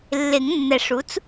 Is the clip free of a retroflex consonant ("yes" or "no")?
no